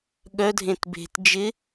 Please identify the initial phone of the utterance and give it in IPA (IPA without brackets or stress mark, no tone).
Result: ɠ